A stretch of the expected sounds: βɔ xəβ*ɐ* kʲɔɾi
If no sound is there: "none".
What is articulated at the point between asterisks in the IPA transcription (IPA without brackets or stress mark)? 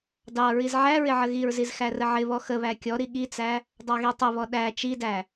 æ